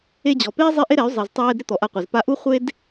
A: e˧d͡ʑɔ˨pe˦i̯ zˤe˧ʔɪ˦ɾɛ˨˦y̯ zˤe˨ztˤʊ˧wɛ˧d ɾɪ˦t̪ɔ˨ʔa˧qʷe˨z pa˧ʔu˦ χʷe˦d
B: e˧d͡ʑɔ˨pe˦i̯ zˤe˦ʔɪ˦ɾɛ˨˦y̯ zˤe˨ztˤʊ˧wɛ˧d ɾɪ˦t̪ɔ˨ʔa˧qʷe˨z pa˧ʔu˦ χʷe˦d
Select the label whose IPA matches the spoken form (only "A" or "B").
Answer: B